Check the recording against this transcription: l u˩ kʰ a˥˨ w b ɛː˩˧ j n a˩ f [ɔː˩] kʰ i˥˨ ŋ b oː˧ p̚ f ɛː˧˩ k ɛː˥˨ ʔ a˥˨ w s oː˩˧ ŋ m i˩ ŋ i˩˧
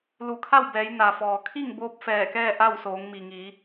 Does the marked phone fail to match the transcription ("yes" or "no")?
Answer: no